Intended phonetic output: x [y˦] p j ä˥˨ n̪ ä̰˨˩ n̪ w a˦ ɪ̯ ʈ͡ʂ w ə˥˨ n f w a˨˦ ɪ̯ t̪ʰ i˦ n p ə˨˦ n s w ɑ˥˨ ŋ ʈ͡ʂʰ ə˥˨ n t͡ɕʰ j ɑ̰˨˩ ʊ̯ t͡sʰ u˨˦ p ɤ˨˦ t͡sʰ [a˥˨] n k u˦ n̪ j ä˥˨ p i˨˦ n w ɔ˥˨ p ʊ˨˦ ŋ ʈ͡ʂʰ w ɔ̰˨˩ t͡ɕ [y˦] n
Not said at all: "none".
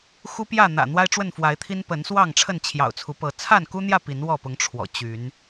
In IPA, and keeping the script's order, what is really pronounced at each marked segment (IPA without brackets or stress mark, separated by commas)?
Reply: u˦, a˥˨, y˨˦